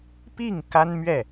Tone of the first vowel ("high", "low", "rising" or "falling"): falling